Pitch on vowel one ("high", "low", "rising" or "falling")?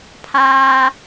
high